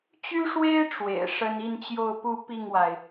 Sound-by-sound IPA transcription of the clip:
t͡ɕy˥ʂwe˥ɪ̯ ʈ͡ʂwḛ˨˩ɪ̯ʂə˥n i˥˧nt͡ɕjo˥˧ʊ̯pu˥˧ pi˥˩ŋwa˩ɪ̯

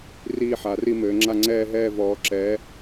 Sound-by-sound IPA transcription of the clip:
riː˥˧ħa˨˦ri˥˧mɘː˨˦ ŋ͡ǁa˥˧ŋ͡ǀɛː˥˧ɦɛː˥˧ vɔː˨˦ǁɛː˨˦

